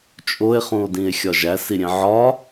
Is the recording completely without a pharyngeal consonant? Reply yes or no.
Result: no